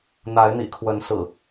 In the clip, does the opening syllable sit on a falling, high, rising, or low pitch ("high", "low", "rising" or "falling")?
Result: rising